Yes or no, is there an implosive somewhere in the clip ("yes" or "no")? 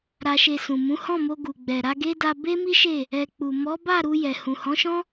no